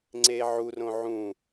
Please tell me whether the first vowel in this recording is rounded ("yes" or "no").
no